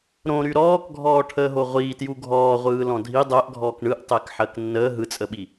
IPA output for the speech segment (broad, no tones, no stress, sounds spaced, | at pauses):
ɾ õ ɾ y ɾ ɔː k ɡʱ ɔː ʈʰ əː ɦ o ʁʷ iː t j u ɡʱ ɔː ʁʷ ɯː l ɔ̃ dʱ i dˤ ɜ ʔ ɡʱ ɔː k ɳ ɯ ʔ tˤ ɛ k ħ ɜ k nː əː ɦ ɯ t͡sʼ ə ɓ i